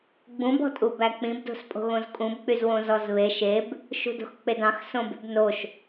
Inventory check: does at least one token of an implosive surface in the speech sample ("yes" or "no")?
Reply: no